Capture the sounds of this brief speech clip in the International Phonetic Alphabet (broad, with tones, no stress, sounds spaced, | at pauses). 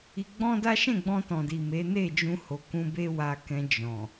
i˧ ɡ͡b ɔ̃˦ d a˦ ʃ ɛ̃˦˨ ɡ͡b ɔ̃˧ t ɔ̃˨ d i˨ m e˨˦ n e˦˨ d͡ʒ ũ˧ h o˨ k ũ˧ b e˦ w a˧ k ɛ̃˧ d͡ʒ ɔ̃˨